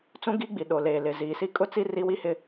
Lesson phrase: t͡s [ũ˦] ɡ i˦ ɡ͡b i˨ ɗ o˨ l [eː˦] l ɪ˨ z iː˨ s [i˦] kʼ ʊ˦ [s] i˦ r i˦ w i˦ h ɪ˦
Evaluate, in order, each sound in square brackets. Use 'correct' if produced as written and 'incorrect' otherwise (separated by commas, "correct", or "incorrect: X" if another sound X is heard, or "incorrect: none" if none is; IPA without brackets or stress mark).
correct, incorrect: eː˨, correct, incorrect: t͡s